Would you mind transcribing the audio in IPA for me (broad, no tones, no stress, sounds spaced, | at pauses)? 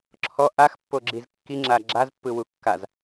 ǁʰ ɔ ʔ a x pː o ɡ͡ǁ i z kː i ŋ͡ǁ a ɡ͡ǁ a z pː ɯ w u kː a z